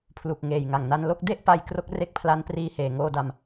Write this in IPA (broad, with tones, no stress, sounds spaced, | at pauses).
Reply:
pʰ l u˨˩ k̚ ŋ eː˨˩ j ŋ a˨˩ ŋ n a˧ n l o˦˥ k̚ d e˥˩ ʔ p a˧ j k r o˦˥ k̚ r e˦˥ k̚ pʰ l a˦˥ n p r iː˧ h eː˨˩ ŋ oː˧ d a˧ m